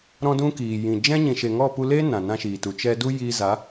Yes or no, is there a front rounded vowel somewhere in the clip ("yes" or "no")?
no